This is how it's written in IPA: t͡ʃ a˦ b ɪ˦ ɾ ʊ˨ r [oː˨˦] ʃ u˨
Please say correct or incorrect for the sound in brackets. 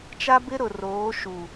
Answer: correct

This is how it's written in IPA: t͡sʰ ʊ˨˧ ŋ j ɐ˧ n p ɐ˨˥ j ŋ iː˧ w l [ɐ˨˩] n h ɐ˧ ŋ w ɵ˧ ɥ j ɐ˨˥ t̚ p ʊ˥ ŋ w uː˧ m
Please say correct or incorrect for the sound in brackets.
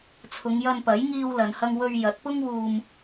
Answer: incorrect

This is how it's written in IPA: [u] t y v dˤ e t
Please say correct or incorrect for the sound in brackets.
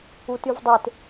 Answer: correct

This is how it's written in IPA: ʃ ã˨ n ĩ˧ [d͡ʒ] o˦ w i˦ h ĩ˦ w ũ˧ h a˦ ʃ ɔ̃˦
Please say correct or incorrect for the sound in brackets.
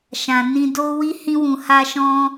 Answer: incorrect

